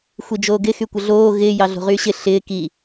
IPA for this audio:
xʷ i d͡ʒ oː ɡ ɪ x y kʷ ə ɮ oː ɣ ɪː j ɑ ɮ o̤ ʁ yː ɕ ɪ ɬ ɪː k i

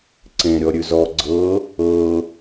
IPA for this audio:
ǀ ẽ ɾʲ ɔ ɾʲ ʉ z ɔ ɡ͡ǀ ɤ | ɤ

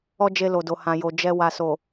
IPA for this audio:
ɔ˦ d͡ʒ e˧ l o˨ d o˨ h ã˨ j o˨ d͡ʒ ɛ˧ w a˨ s o˨

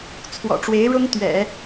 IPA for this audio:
t͡sʰ w ɔ̰˨˩ ʈ͡ʂ w e˧˥ ɪ̯ ɻ ʊ˥ ŋ t̪ ɥ ɛ̰˨˩˦

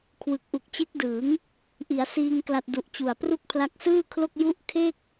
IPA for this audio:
kʰ w ɯ˨˩ k̚ ʔ u˨˩ k̚ t͡ɕ e˦˥ k̚ d ɯː˩˦ ŋ | ʔ i˩˦ a̯ s iː˧ ŋ k l a˨˩ t̚ d u˨˩ ʔ t͡ɕ u˨˩ a̯ p r u˥˩ k̚ pʰ l a˦˥ k̚ s ɯː˥˩ kʰ l o˥˩ k̚ j u˦˥ ʔ kʰ e˥˩ k̚

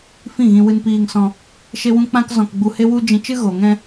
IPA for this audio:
f ĩ˦˨ ɣ ĩ˧ w ɨ˧ n p iː˧ ŋ s ɔ̃˧ | ʃ e˦ w ũ˦ k͡p ã˦ k z ɔ̃˧ k ɡ͡b u˧ h e˦ w u˦ d͡ʒ ĩ˧ t͡ʃ ɨ˦ ɣ o˨ ŋ ɛ̃˧

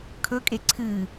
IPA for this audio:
kʰ ɵ kʼ e ǀʰ ɨ

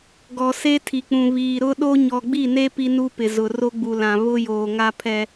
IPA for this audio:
ɡ ɔ˨ s e˦ tʰ i˨ k͡p ũ˨ β iː˨ ɾ ʊ˦ ɗ o˦ ɲ ɔ˨ ɡ͡b i˦˨ n e˦ p i˦ n u˦ p ɪ˨ z ʊ˨ r o˦ ɡ͡b u˨ l ã˨ β ʊ˦ j oː˨ ŋ a˦ pʰ ɛ˦

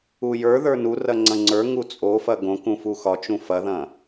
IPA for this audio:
u j ə˞ ð ə˞ n u r ɐ ŋ͡ǀ ɐ̃ ŋ͡ǀ ə˞ ŋ u t͡sʼ o f ɐ ɡ õ k ũ f u x ɒ t͡ʃ ũ f ɐ ð ɐ̃

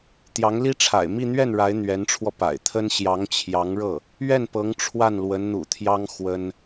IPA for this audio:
t̪ j ɑ˧˥ ŋ l i˥ ʈ͡ʂʰ a̰˨˩ ɪ̯ m i˥˧ n̪ ɥ ɛ˥˩ n ɻ a˧˥ ɪ̯ n̪ ɥ ɛ˧˥ n ʈ͡ʂʰ w ɔ˧ p a̰˨˩ ɪ̯ t̪ʰ ə˥ n ɕ j ɑ˧˥ ŋ t͡ɕʰ j ɑ˧˥ ŋ ɻ ɤ˥˩ | ɥ ɛ˥˩ n p ɤ˧˥ ŋ ʈ͡ʂʰ w a˥˩ n l w ə˧˥ n n̪ ṵ˨˩ t̪ʰ j ɑ˥ ŋ x w ə˥ n

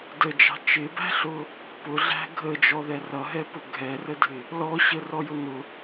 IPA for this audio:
d ə d͡ʒ ɑ̤ t͡ʃ ɪ b æ̤ ɬ ʊ | p ʊ ɮ æ̤ ɡʱ ə d͡ʒ ɔ ð ɛ r ʌ ɦ ɛ p ʊ ɡʱ ɛ r ə dʱ ɪ | l ɔ ɕ ə r ɔ j ʊ n ʊ

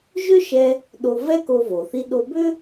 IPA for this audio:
ʒ ʏ˥ ʃ ɛ˧ | ɗ o˧ v ɛ˥ k o˧ v o˩ θ i˧ ɗ o˧ b ʏ˥

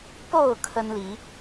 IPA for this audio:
p o˥˨ ʊ̯ kʰ ə˦ n l i˨˦

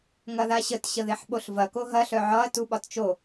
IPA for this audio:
ŋ ɐ ð a ɕ ə t ɕ ə ð e ħ ɓ o ɬ v ɐ k o ɦ ɐ ɬ œ ʕ ɒ ɐ̯ t u ɓ ɒ t t͡ʃ o

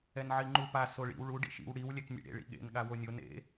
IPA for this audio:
ɛ n ʕ i ŋ͡ǃ u p a s o ɭ ḭ w ɭ u ɖ ḭ ʃ ḭ w ɽ i w lʲ ɛ k nʲ ḛ ɽ ḛ ɭ ḭ ɠ ḛ n ɠ a w o nʲ o n ḛ

